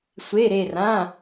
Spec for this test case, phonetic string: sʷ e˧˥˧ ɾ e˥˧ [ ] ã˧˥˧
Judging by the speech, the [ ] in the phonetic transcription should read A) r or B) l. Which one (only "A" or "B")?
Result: A